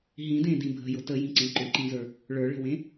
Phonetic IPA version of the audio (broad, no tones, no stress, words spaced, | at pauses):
ɦĩdẽdĩ bʱə̤jʊ təjĩǀẽ ǃʏǃĩzə˞ | ɭə˞ɭə̤wẽ